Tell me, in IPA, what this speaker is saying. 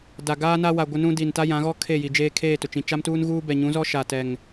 da˨ɡaː˦na˦wa˨ ɡʷɪ˦nũ˦di˨n ta˦jã˨˦ɣɔ˦ kʰe˦˨ji˨ d͡ʒeː˦ kʰeː˦˨tʊ˨t͡ʃĩ˨ t͡ʃa˦mtuː˦nɣuː˦bɛ˨ ɲũ˨˦zɔ˦ ʃa˨tɛ˨ŋ

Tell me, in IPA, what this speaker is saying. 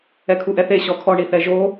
ɛkʰuʔɛθe ɕɔkʰɔ ɳiθɛʒo

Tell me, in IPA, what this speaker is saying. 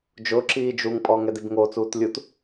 d͡ʒʊǁiː d͡ʒuŋpʼɔ ŋɛdibŋot͡suːt lʲut

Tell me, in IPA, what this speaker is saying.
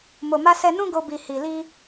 mo˨ma˧sɛ˧nũ˦ ɡo˧ bi˨ hi˨li˧

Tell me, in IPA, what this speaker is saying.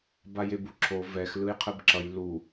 bajebuǁʰo vɛx lɯjqʰɯbǁʌj lu

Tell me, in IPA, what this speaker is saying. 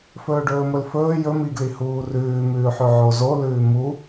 fɵːɖɵːmɵlfɵː jɵmiɡli huːrʉːmʉːħʉ ʕozolʉː mu

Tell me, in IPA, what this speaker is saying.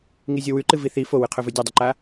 ŋizʲowʉǃɨ viθi fowɨqʰɵvɵ dʲɐdˤɵǃa

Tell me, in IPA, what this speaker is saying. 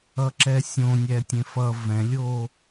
ʌǁɛsʲõ nʲɛtʲẽfʌ vɛ̃lʲoː

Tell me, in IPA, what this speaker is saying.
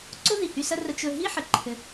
ǀo˥ði˩ hy˧sɐ˥rə˧ t͡ʃɵ˧ ɦi˥ħə˩ ǃʰɘ˧

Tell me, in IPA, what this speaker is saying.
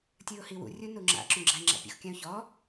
tʲɯʊ̯hiwṵ rʲunuŋ͡ǁa̰ ǁũɡ͡ǁaɪ̯ŋ͡ǁa̰pʲṵx kʲãʊ̯çɔ

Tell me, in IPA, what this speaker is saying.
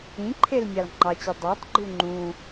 ĩǃʰel mʲɑlŋ͡ǃɑt͡ɕe dˤɑtˤɡ͡ǃu ŋ͡ǃũ

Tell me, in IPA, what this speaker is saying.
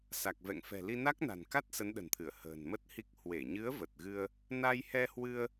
sa˨˩k̚vɛ̰˧˨ŋfɛ̤˨˩ li˧na˦˥k̚na̤˨˩nka˦˥t̚ sə˨˦nɗə̤˨˩nt̪ʰɨ˧˩ə̯ hə̤ː˨˩nmə˦˥t̚hi˦˥k̚ hwe˧˩ɲɨ˨˦ə̯ və˨˩t̚ɣɨ˧ə̯ | na˧jhɛ˧hwɨ˧ə̯

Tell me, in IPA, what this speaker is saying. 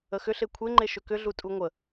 əxʏ ɬekʷʰeŋ͡ǃe ʃʏkʏɮu tʼuŋʷə

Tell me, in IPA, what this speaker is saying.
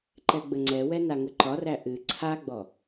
ǃɛɡ͡bəŋ͡ǀɛwɛ naŋəǃɒræ ʔɨ ǀʰaɡ͡bɔ

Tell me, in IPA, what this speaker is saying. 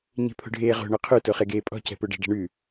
ɲe̤pʰo̤ɖʱeːʁo̤ ɳoqʰʉ toχeɡeːpʼɔ̤ cɛ̤poɖɛ̤ ɖɛ̤ɳʉ

